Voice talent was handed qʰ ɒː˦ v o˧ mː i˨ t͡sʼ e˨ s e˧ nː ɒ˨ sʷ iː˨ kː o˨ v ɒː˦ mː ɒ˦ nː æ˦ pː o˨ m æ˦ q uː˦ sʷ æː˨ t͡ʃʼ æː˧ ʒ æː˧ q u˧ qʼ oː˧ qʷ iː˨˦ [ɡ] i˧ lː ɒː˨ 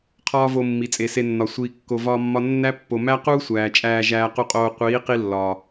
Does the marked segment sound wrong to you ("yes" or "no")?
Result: yes